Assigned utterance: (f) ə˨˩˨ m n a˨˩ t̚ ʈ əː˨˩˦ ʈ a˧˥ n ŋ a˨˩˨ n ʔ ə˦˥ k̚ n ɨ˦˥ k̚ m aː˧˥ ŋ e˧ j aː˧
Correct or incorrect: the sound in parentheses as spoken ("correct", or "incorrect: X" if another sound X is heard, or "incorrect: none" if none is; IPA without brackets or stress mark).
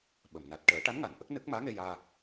incorrect: ɓ